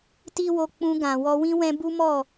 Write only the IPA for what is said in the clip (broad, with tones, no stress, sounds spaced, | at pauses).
t i˦ w o˧ k͡p ũ˧ ɡ ã˨ w ɔ˧ w ĩ˦ w ɛ̃˦ b u˦ m ɔ˦˨